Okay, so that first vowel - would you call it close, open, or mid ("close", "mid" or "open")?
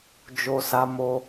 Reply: mid